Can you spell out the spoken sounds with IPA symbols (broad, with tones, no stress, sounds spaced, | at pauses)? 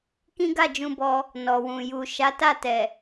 k ĩ˦ ɡ a˦˨ d͡ʒ ũ˧ b ɔ˧ | n ɔ˨ w ũ˨ j u˨ ʃ a˨˦ t a˦˨ t ɛ˨